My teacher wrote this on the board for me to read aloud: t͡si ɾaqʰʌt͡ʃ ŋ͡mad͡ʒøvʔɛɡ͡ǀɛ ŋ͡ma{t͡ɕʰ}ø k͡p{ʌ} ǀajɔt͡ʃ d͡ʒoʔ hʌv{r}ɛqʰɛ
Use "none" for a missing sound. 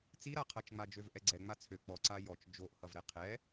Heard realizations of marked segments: t͡sʰ, ɔ, ɾ

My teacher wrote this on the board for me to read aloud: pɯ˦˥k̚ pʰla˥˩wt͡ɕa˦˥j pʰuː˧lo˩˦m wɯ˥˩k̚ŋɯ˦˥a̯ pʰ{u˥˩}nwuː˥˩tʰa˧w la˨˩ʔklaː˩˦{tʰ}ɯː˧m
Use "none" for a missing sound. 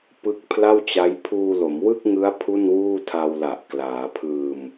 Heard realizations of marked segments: u˥˩, pʰ

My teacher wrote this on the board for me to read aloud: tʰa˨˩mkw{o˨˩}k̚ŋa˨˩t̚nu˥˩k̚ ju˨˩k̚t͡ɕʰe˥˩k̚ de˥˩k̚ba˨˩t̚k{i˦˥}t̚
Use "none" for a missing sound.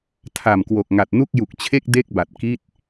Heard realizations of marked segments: o˨˩, i˥˩

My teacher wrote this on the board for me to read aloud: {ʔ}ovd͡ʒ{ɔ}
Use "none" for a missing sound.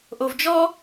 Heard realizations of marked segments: ʔ, ɔ

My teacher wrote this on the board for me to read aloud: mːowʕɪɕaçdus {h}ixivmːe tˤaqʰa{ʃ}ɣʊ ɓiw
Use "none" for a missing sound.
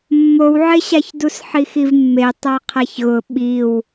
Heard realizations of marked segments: ħ, ç

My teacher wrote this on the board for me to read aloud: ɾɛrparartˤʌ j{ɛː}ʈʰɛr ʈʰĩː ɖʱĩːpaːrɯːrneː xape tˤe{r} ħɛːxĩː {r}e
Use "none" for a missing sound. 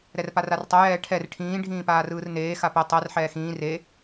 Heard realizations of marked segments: ɛː, r, r

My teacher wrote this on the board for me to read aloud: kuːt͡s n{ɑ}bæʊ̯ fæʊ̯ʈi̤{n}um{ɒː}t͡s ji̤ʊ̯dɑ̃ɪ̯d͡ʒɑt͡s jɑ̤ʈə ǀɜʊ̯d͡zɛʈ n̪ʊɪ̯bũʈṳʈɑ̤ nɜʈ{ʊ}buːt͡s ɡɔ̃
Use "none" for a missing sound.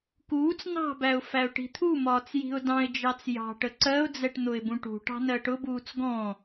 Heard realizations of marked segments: ɑ̤, t̪ʰ, ɒː, ʊ

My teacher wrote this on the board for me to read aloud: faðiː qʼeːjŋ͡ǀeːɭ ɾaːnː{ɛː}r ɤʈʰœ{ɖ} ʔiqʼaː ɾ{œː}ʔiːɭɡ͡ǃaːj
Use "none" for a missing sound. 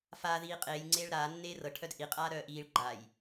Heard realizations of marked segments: eː, d, œː

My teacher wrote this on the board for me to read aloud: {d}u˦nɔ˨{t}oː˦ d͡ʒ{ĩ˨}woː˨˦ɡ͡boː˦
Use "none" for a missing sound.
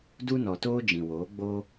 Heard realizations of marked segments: d, t, ĩ˨

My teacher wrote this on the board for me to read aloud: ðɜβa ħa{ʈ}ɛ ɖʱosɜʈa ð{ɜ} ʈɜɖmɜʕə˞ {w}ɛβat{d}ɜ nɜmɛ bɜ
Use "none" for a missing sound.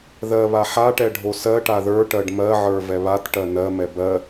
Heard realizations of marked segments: ʈ, ə˞, v, ʈ

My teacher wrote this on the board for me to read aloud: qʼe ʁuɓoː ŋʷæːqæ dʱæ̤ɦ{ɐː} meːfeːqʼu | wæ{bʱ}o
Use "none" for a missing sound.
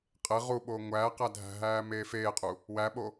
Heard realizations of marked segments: æː, ɓ

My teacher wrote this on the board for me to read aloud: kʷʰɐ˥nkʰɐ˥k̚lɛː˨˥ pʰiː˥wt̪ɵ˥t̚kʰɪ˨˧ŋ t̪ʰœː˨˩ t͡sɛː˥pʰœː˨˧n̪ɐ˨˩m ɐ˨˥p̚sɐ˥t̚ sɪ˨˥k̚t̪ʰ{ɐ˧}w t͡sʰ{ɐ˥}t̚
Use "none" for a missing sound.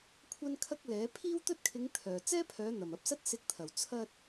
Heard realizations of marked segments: ɐ˨˩, ɐ˧

